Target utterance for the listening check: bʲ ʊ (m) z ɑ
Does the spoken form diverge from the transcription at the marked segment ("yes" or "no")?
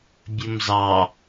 no